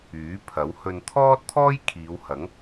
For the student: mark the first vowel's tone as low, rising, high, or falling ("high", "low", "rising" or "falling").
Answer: rising